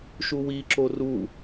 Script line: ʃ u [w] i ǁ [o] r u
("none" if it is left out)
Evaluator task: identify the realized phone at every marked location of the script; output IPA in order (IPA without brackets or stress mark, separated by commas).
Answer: w, o